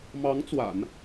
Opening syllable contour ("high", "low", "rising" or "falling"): rising